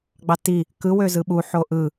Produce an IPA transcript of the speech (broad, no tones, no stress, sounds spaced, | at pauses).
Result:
ɡ͡b ɑ t i | k ɯ w ø z ɯ ɓ u ħ o ʔ ɯ